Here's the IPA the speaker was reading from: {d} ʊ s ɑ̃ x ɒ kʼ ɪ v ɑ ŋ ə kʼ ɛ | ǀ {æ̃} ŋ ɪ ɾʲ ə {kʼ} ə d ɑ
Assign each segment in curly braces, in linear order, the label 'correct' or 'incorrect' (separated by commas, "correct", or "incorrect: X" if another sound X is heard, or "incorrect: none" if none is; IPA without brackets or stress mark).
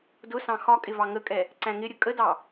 correct, correct, correct